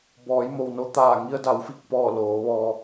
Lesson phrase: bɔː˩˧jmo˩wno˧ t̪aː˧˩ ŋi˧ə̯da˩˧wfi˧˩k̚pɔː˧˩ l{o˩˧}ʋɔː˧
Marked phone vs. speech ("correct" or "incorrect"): incorrect